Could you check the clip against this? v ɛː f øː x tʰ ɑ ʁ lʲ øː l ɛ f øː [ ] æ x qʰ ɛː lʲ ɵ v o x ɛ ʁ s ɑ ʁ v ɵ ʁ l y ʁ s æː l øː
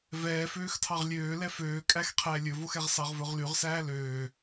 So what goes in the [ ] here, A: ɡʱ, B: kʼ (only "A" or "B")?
B